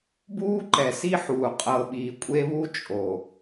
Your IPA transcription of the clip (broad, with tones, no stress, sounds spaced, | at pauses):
b uː˦ ǃ ɛ˨ s i˦ ħ uː˨ qʼ ɤ˨ ɓ iː˨ kʷʼ e˦ β u˦ t͡ʃʼ o˨